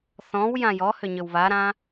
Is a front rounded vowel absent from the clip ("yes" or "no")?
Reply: no